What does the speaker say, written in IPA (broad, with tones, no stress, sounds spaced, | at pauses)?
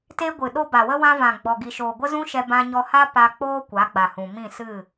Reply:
t eː˦ ɡʷ ɨ˨ ɗ o˦ b a˨ w ə˦ w ã˧ v ã˨ ɡ͡b ɔ˨ ɡ i˨ ʃ oː˨ ɡʷ ə˦ z ũ˦ ʃ ɛ˧ b ã˧ ɲ ɔ˧ h a˦ p a˧ k͡p oː˦ kʷ a˨˦ ɡ͡b a˨ h ũ˨ m ĩ˦˨ s ɨ˦˨